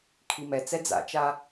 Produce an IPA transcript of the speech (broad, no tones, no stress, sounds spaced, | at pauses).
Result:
kʰ i m ɛ t͡s ɛ d͡z a̰ t͡ʃ a